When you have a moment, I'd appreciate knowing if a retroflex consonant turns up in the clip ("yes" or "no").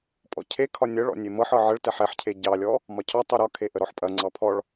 yes